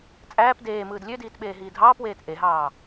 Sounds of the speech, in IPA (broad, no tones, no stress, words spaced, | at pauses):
t͡sʼæːp deːmɯːd lʲødiːtɓeːɦiː dʱɑːpweːt ʔeɦɑː